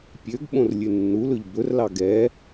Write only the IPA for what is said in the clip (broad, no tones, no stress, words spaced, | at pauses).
pʲøɡ ɓõrlʲʉnːulɵʎ bɵrlɑ ɡɛ